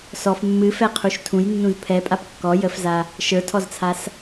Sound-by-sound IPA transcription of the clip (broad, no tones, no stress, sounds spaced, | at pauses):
s ɔ f mː ɨ f ɛ qʰ u ʃ tʰ ũ j nː ũ z pʰ ɛ pʼ a p kː ɔ j ə f z a | ʃ ə˞ tʰ ɔ z t͡sʰ a s